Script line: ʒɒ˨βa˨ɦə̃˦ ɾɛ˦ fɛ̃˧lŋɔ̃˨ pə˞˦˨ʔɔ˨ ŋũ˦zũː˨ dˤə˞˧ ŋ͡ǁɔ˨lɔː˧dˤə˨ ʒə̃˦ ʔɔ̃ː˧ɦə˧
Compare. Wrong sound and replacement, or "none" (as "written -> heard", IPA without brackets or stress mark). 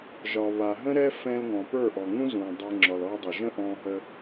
none